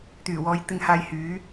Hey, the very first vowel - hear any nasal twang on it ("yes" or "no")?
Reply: no